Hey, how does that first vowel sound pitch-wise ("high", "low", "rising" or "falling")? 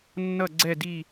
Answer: falling